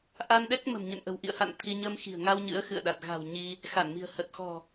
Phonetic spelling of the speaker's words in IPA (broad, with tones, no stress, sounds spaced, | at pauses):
ʔ a˧ n ɗ ɛ˦˥ k̚ m ə̤˨˩ m ɲ ə̰˧˨ n ʔ ə̤˨˩ w ʔ ḭ˧˨ ə̯ h a̰˧˨ n t̪ʰ i˧ ɲ ə˧ m x i̤˨˩ ə̯ ŋ a˧ w ɲ ɨ̰˧˥ ə̯ x ɨ̰˧˨ ə̯ ɗ a˨˩ t̚ ɣ a̤˨˩ w ɲ i˧ | x a˧˩ n m i̤˨˩ ə̯ h ə˨˩ t̚ x ɔ̤˨˩